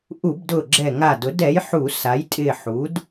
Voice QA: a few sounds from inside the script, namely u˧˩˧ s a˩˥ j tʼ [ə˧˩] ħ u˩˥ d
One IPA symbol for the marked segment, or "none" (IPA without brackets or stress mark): ɪ˧˩